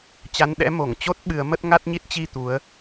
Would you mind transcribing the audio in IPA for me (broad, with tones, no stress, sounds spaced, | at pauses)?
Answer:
t͡ɕ a˨˦ n ɗ ɛ̰˧˥ m o˧˩ ŋ t͡ɕ o˦˥ t̚ ɓ ɨ˨˦ ə̯ m ə˦˥ t̚ ŋ a˦˥ t̚ ɲ i˦˥ t̚ t͡ɕ i˧ t̪ u˨˦ ə̯